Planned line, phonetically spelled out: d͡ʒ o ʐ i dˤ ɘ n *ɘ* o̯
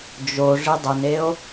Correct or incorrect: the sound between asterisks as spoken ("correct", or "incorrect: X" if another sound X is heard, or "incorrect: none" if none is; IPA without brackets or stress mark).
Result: incorrect: e